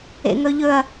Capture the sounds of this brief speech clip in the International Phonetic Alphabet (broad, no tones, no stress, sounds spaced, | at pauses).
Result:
ḛ ŋ ɵ ʎ ɵ ɐ̯